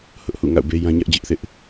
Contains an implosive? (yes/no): no